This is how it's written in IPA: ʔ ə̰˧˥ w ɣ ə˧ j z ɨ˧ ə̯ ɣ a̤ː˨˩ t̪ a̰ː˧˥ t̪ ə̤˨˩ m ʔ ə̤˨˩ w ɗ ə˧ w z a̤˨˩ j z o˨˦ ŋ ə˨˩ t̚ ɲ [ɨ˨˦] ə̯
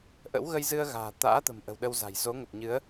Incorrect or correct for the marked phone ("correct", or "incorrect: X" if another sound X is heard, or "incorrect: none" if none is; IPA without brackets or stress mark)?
correct